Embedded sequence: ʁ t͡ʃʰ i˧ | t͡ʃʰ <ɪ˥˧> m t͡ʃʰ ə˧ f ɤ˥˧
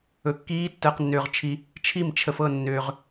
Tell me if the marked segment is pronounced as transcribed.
no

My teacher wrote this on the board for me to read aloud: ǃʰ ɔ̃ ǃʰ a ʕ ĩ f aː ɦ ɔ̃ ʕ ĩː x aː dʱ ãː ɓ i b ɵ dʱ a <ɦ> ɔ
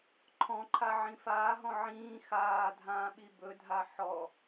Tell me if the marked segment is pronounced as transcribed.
no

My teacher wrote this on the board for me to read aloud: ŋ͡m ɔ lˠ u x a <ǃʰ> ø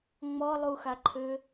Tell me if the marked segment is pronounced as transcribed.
yes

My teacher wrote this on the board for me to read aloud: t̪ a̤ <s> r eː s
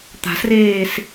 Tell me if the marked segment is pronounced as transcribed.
yes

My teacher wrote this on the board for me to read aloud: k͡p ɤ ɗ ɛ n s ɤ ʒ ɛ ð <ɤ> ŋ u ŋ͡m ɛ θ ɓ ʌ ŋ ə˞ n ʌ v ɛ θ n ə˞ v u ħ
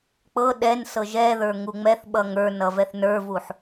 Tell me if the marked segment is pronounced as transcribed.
no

